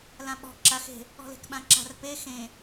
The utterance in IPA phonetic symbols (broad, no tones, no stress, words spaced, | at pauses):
lãɓɔ̤ ǁaxe̤ | ɔ̤le̤kɓãǁa̤r pe xẽ